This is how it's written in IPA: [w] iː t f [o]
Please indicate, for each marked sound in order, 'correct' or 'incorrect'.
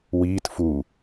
correct, incorrect

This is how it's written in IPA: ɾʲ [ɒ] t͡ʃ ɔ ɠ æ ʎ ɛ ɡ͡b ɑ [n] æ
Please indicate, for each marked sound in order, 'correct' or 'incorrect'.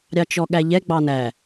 incorrect, correct

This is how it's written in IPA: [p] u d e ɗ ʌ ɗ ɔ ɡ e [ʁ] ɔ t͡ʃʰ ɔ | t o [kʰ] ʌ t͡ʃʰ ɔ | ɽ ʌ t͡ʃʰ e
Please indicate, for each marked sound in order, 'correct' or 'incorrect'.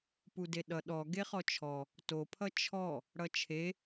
correct, incorrect, incorrect

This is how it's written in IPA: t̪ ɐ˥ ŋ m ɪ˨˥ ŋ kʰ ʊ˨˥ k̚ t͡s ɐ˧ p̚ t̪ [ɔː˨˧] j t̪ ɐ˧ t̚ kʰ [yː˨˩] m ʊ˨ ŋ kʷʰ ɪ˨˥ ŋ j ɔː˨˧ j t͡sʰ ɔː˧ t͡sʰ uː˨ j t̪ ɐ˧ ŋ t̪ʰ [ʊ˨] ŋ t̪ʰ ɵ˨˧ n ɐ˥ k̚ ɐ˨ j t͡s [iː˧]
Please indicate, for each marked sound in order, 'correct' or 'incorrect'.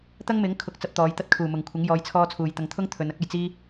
correct, incorrect, incorrect, incorrect

